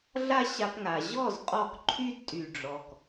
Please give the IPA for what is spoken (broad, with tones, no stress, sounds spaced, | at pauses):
ɮ a˧ ɕ a˧ p ŋ a˨ ʑ ɔ˦˨ z qʼ ɔ˦˨ k ǃʰ y˦ d tʼ y˨ ɖ͡ʐ ɔ˨ k